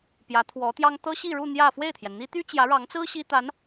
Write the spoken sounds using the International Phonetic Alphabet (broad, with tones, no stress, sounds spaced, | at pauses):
p j ä˧˥ t̪ʰ w ɔ˧˥ t̪ j ɑ˥ ŋ t̪ ɤ˥ ɕ i˥˧ ɻ u˥˧ n̪ j ä˥˧ f w e˥˩ ɪ̯ t̪ʰ j ɛ˩ n n̪ i˥ t̪ y˥ t͡ɕ j ä˧˥ ɻ ɑ˧˥ ŋ t͡s ɹ̩˥ ɕ i˥ t̪ a˧˥ n